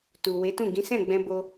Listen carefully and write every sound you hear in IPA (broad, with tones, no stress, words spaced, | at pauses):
tu˨we˨˦tũ˦˨ ɡĩ˨˦sɛ̃˦˨ɡ͡bɛ̃˧ bo˦